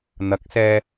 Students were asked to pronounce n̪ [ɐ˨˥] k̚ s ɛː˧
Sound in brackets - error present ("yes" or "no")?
no